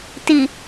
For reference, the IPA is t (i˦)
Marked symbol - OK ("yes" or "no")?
no